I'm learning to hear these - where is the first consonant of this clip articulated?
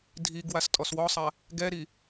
tongue tip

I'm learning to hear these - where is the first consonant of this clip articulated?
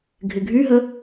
velum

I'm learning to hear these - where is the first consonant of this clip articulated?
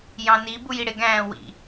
palate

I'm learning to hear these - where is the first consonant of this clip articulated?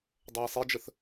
tongue tip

